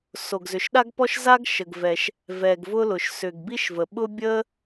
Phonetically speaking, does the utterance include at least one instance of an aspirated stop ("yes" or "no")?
no